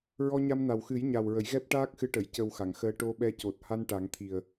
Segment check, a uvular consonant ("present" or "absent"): absent